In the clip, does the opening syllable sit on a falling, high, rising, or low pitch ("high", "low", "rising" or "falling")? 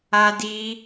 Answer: high